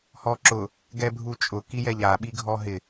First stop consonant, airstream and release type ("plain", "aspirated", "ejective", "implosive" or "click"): click